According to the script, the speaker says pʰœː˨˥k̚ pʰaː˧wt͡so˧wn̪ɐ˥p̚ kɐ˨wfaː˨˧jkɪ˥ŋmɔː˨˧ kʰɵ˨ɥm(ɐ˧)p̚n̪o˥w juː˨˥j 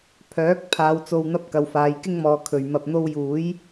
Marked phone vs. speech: correct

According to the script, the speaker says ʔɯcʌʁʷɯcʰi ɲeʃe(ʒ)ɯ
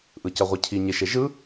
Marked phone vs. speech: correct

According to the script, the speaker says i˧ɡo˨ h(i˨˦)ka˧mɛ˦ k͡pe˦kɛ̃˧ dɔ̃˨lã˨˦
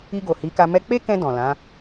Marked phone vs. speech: correct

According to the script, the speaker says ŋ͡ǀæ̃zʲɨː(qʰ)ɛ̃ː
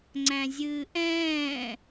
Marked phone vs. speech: incorrect: ʔ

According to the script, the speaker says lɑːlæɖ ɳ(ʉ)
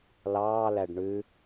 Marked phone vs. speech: correct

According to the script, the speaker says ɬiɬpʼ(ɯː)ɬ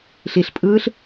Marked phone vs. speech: correct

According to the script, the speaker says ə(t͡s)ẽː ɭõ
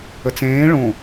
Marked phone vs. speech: correct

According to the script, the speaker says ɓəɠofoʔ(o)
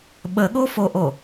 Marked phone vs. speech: correct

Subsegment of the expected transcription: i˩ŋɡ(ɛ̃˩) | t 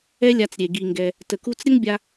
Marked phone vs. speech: incorrect: ɛ˩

